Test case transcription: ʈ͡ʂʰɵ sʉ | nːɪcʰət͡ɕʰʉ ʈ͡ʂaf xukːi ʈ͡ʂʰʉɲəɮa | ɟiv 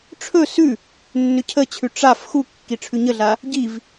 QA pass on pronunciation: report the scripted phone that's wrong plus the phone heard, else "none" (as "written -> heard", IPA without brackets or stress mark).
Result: ɪ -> ʏ